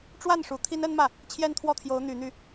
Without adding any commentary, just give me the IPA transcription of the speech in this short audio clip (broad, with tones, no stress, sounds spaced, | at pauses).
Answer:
ʈ͡ʂ w a˥˩ n ʂ u˧˥ t̪ʰ i˥ n ə˥ n m ä˥˩ | t͡ɕʰ j ɛ˥˧ n t̪ʰ w ɔ˥˩ t̪ʰ j o˧˥ ʊ̯ n̪ y˧˥ n̪ y˥